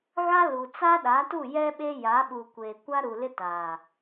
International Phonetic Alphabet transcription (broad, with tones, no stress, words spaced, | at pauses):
ɣa˦ lu˨ t͡sa˦ɗa˨˦tu˦˨ jɛ˦ ɓe˦ja˨˦ɓu˨ kʷe˨ kʷa˦ɾu˨lɪ˦ taː˨